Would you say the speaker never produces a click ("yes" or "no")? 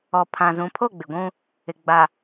yes